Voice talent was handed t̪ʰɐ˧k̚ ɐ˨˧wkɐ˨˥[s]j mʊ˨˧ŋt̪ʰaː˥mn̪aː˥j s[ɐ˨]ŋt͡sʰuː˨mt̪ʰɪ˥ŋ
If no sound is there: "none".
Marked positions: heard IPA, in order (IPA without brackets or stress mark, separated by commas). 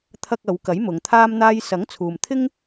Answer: none, ɐ˨˥